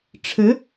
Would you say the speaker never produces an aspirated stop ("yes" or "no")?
no